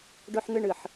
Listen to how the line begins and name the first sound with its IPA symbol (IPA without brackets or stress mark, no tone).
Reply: ɖ